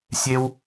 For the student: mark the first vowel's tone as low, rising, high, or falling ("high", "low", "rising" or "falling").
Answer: high